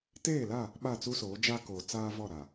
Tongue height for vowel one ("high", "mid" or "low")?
mid